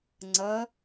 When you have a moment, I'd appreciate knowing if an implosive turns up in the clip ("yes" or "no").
no